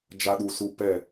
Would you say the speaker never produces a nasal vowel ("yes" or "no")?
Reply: yes